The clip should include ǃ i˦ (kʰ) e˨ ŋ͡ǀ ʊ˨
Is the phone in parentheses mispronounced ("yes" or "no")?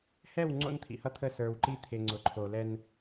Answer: yes